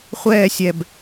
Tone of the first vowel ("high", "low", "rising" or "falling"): falling